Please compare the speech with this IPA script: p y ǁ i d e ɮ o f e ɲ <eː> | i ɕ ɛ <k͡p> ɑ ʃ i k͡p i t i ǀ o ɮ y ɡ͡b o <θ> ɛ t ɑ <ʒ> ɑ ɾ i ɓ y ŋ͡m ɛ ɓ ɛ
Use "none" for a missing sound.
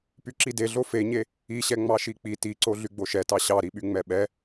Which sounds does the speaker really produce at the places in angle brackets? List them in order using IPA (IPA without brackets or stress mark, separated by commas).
e, ŋ͡m, ʃ, ɕ